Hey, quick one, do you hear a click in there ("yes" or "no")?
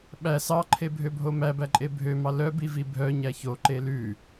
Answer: yes